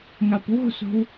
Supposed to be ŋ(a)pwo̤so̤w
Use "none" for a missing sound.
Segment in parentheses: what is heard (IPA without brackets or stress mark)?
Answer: a